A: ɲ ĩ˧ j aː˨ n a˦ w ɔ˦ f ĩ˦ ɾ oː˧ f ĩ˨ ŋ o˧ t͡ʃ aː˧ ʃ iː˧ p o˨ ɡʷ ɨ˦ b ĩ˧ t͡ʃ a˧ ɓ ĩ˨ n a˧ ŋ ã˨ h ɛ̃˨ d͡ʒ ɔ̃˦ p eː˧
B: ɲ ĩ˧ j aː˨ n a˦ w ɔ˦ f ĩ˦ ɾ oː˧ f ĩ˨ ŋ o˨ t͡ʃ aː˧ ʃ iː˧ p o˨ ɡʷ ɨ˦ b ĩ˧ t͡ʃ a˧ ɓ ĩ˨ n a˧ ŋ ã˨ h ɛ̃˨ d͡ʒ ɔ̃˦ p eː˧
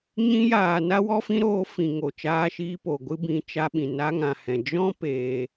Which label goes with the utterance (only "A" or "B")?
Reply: B